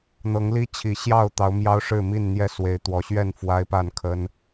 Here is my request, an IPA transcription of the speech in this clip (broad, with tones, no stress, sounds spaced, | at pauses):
n̪ ɤ˨˦ ŋ l i˦ t͡ɕʰ i˨˩ ɕ j ɑ˥˨ ʊ̯ t̪ ɑ˨˦ ʊ̯ m j ɑ˦ ʊ̯ ʂ ɻ̩˥˨ m i˥˨ n n̪ j ɛ˦ s w e˨˦ ɪ̯ t̪ w ɔ˨˩ ɕ ɥ ɛ˥˨ n f w a˦ ɪ̯ p a˥˨ n kʰ ə˦ n